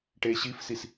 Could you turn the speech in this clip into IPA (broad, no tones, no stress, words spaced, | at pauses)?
ʈeɕifsis